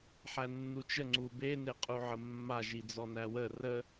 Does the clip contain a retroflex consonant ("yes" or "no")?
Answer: no